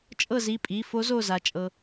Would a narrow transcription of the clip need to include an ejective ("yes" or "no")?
yes